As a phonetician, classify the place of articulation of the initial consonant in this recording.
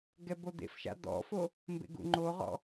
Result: velar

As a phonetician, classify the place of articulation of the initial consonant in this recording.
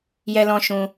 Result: palatal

